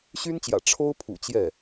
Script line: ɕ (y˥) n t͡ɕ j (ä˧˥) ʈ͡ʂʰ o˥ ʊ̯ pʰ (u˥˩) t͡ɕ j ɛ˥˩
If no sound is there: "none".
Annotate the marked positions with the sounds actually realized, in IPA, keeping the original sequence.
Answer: y˥, ä̰˨˩, ṵ˨˩

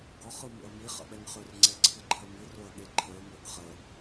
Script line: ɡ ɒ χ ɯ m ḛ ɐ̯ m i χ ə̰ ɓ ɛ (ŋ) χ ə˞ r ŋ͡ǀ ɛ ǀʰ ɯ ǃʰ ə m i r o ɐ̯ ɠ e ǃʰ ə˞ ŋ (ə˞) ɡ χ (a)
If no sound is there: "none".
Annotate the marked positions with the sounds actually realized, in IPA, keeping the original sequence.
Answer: ŋ, ə˞, ə

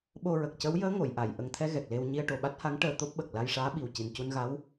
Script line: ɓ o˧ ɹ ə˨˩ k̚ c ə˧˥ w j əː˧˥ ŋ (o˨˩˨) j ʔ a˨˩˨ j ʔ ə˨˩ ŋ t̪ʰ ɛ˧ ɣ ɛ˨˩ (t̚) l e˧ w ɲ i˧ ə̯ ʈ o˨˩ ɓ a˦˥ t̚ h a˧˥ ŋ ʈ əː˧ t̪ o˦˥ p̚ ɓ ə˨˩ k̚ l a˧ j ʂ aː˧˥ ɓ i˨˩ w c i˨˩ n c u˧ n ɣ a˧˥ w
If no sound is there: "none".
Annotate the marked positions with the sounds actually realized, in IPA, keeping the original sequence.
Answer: o˨˩˨, k̚

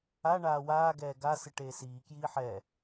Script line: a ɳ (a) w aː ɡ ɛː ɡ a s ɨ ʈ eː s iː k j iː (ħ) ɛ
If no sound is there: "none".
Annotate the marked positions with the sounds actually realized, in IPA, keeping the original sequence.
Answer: aː, ħ

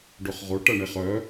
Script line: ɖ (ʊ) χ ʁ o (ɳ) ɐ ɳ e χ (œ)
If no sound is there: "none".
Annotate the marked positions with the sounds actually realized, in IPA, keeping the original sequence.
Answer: ʊ, ʈ, œ

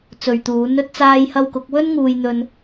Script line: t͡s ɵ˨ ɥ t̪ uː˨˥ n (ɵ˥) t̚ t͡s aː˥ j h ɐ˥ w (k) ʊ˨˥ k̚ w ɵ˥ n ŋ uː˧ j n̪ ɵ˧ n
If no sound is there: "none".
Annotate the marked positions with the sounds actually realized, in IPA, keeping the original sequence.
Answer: ɵ˥, k

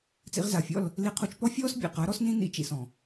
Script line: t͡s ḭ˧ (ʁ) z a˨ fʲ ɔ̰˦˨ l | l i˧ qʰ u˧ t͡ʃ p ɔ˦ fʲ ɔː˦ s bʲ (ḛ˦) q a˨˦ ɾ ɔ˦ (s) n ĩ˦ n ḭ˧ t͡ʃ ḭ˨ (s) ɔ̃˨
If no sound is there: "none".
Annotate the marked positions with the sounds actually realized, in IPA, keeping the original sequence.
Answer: ʁ, ḛ˨, s, s

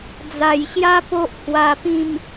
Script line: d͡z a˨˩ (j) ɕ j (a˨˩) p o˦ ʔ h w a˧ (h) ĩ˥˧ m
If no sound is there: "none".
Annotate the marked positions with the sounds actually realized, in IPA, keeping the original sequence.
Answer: j, a˦, p

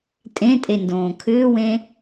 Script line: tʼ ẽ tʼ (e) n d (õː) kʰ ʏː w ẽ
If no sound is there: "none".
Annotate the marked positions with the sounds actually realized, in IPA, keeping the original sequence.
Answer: e, õː

